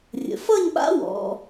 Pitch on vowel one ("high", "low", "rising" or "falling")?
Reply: low